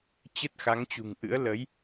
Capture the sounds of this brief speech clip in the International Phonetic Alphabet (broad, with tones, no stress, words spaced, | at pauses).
t͡ɕə˦˥t̚xa˨˦ŋt͡ɕṳ˨˩ŋʔɨ̰˧˥ə̯ lə˨˦j